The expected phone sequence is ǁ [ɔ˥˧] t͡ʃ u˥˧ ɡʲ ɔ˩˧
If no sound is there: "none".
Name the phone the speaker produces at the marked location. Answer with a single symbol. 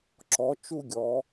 ɔ˩˧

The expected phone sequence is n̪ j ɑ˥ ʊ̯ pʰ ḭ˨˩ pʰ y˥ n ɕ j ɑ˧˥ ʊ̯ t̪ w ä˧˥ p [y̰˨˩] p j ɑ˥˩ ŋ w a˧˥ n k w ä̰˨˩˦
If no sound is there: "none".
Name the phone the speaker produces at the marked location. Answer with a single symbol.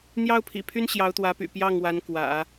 y̰˨˩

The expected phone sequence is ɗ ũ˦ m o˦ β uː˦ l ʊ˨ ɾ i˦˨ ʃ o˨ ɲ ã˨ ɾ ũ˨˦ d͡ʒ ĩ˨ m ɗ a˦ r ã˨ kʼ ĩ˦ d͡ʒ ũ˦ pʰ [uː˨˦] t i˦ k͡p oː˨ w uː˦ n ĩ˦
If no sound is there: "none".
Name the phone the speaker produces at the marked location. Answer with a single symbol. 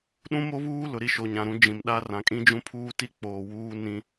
uː˦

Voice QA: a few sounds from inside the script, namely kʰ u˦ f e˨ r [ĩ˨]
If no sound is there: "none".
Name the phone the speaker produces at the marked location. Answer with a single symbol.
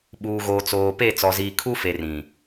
ĩ˨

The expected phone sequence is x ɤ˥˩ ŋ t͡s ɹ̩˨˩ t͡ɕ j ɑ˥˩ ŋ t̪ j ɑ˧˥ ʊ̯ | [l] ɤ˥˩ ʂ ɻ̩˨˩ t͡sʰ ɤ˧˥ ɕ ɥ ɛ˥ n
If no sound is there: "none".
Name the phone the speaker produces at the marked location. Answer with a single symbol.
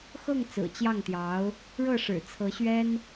ɻ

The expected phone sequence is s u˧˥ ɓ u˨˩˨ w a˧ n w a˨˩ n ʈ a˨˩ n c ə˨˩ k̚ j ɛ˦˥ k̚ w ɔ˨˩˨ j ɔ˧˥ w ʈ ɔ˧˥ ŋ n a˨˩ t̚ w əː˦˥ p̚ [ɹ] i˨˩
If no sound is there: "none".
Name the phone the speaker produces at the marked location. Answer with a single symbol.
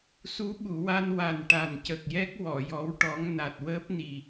n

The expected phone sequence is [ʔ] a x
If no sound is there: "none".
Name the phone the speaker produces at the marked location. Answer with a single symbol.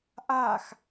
ʔ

